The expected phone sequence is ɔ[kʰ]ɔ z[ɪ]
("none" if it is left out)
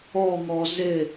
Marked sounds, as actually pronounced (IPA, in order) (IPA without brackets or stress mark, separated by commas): ŋ, ɪ